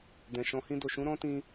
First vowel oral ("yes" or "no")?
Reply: no